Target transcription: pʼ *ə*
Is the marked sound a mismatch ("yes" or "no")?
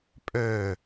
yes